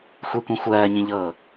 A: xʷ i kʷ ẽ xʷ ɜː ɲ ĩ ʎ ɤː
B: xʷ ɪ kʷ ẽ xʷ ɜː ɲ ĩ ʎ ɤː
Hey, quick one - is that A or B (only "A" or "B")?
A